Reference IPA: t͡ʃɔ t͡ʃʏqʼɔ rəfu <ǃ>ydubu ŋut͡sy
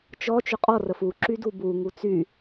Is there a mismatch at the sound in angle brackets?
yes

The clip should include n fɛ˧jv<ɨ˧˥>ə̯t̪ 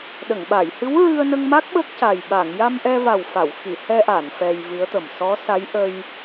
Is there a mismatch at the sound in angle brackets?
no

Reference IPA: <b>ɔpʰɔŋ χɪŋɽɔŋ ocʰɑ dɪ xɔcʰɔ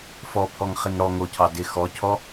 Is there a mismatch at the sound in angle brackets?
yes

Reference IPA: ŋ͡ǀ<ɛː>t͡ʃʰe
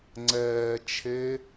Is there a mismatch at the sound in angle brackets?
no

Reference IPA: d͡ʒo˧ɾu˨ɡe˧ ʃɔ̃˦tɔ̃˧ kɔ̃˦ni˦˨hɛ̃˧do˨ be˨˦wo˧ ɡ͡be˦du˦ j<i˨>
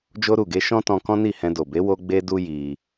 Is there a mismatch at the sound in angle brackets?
yes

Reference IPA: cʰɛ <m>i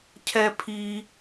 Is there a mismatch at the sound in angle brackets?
yes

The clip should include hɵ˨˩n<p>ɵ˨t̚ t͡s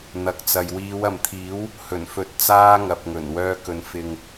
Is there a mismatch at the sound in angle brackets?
yes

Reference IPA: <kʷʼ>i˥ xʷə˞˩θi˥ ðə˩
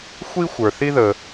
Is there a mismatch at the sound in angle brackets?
yes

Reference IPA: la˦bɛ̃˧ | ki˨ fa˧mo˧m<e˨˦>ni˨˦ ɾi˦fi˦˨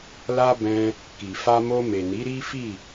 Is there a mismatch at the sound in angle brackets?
yes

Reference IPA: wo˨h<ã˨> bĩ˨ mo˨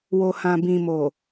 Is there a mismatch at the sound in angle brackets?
no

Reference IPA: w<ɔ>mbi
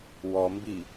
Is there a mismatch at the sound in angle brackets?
no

